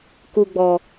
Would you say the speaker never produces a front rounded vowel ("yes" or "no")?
yes